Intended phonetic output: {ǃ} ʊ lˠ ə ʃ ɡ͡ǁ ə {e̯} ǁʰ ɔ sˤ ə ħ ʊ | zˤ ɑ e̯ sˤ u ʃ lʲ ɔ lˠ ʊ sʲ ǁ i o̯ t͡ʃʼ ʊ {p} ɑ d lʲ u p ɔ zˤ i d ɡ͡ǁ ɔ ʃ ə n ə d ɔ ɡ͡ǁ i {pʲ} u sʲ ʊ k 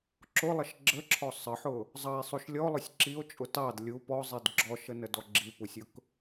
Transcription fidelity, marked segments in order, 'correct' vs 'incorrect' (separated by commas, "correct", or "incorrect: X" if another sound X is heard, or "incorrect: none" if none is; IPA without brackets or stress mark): incorrect: ǁ, incorrect: none, incorrect: t, incorrect: p